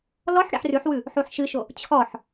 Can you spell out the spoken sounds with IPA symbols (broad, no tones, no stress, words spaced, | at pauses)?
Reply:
lɔħ ɽḛħrʉħwʉ | ħuħʃɨʃo | t͡ɕʰɔħ